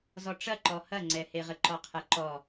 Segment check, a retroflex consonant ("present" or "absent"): present